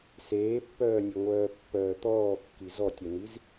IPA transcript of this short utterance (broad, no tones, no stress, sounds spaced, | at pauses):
s eː pː œː nʲ e ŋʷ œː pː œː t̪ ɔː kː i z ɔ tʲ œ n̪ i z